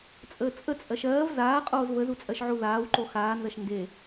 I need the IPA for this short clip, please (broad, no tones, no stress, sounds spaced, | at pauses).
t͡sʼ əː t͡sʼ ə t͡sʼ ɜ ʃ ɜː v z aː qʼ oː z v ə z u t͡sʼ ɜ ʃ ʕ u ð aː w ǃ o x aː n z ɐ ʃ n d e